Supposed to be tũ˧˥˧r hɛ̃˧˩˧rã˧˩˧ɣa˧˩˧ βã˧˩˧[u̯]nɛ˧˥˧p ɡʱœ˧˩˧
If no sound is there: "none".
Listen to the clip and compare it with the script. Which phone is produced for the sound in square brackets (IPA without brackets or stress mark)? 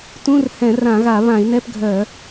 i̯